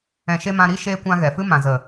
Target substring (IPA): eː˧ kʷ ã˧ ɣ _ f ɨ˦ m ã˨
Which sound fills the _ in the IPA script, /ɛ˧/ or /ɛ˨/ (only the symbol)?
ɛ˨